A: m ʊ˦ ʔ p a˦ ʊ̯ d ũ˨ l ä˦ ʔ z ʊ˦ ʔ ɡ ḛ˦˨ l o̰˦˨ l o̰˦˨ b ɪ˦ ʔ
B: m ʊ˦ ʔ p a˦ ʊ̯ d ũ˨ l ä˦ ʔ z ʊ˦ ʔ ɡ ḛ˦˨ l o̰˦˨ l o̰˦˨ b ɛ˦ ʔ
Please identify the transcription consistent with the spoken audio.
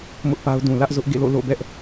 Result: B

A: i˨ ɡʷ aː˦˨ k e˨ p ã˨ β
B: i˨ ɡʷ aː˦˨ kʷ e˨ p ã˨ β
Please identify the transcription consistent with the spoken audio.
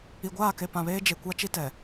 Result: A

